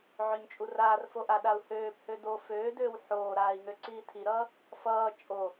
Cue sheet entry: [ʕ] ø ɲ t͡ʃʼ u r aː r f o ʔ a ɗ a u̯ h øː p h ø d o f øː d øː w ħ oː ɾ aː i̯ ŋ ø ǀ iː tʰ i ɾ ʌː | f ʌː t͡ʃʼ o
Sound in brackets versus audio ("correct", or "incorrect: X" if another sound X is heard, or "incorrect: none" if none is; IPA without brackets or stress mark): correct